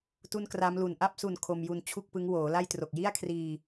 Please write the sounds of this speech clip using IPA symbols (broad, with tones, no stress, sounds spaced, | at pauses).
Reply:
t u˥˩ n k r a˦˥ m l u˨˩ n ʔ a˥˩ p̚ s u˨˩ n kʰ o˧ m j u˧ n t͡ɕʰ u˥˩ k̚ p ɯ˦˥ ŋ w oː˩˦ l a˥˩ j t r o˨˩ k̚ j i˥˩ a̯ kʰ r iː˧